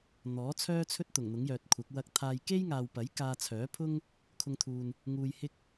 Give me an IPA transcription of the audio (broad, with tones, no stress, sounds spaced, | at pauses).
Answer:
n̪ ɔː˨˥ t͡sʰ œː˥ t͡sʰ ɵ˥ t̚ t̪ ʊ˨˩ ŋ n̪ ʊ˨˥ ŋ j œː˨ t̚ kʷʰ ɐ˨˥ k̚ w ɐ˧ k̚ t̪ʰ aː˧ j k e˥ j ŋ aː˨ w p ɐ˨˥ j k aː˧ t͡sʰ œː˨˥ pʰ ʊ˥ ŋ | kʰ ʊ˧ ŋ t̪ʰ uː˨ n | ŋ uː˧ j h ɪ˥ k̚